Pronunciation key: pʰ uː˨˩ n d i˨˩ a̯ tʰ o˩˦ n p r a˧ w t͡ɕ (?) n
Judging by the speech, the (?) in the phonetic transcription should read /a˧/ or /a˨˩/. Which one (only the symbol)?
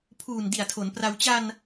a˧